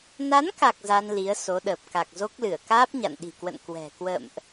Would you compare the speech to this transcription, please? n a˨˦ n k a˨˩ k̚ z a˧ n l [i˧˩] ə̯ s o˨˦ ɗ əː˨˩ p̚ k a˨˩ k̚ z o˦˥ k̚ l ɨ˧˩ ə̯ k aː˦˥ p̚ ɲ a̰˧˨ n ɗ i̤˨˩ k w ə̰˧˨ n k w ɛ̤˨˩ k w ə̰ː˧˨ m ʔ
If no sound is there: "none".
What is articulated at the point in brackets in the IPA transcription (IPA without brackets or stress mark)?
i˨˦